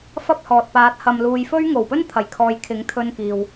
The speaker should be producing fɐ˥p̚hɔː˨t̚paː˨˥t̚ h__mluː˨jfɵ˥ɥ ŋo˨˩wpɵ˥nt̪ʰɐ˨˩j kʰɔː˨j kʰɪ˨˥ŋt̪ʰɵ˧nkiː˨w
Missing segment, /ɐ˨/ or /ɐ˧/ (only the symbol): ɐ˨